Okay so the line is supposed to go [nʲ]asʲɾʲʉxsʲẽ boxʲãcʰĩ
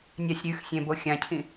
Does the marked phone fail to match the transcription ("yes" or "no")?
no